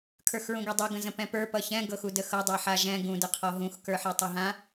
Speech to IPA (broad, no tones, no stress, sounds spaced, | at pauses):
kʰ ə˞ x ɹ ũ ɡ ɛ dˤ u ɡ ə̃ z ə̃ p ɛ̃ p ə˞ p ʌ ç ɛ̃ ɡ ɤ x u d ə x ɤ dˤ e ħ a ʒ ɛ̃ ɡ ũ d ə qʰ ɔ ɦ ũ x k ə˞ ħ e tˤ ə ɦ ã